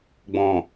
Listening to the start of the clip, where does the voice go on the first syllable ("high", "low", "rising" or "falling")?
low